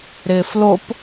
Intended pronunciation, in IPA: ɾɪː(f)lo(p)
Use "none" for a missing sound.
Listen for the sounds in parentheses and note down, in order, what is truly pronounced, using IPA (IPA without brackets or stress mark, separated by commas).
f, p